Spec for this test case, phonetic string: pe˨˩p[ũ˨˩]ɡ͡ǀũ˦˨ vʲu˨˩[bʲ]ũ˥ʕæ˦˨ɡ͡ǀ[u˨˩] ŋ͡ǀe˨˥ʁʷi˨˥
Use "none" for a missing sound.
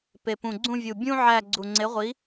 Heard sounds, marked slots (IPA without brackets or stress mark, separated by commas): ũ˨˩, bʲ, u˨˩